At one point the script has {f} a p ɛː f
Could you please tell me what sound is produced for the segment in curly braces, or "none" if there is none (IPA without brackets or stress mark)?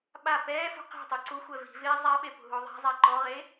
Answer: ɓ